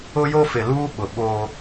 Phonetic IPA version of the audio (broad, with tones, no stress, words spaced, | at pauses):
ʊ˦jo˦fɪ˨luː˦ ɓʊ˨ɓo˦